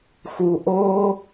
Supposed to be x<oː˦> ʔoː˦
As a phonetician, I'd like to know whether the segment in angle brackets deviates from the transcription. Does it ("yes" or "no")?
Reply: yes